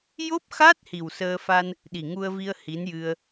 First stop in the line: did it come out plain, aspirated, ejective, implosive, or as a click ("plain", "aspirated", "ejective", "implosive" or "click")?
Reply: plain